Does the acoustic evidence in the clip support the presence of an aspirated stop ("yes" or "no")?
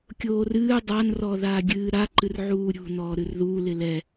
no